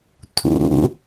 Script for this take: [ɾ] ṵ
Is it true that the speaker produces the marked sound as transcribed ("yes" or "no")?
no